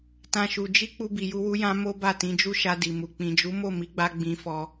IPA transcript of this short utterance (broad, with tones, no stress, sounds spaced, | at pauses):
t ã˦ ʃ u˧ d͡ʒ i˦ k͡p u˧ b i˨ j u˧ w u˧ j ã˧ m o˦ b a˦˨ t ĩ˨˦ d͡ʒ u˦ ʃ a˧ d i˨ m u˨ k͡p ĩ˨ d͡ʒ u˨˦ m o˦˨ m i˨˦ ɡ͡b a˧ ɡ͡b ĩ˧ f ɔ˧